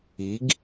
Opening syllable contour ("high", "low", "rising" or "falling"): rising